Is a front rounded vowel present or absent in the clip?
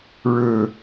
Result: absent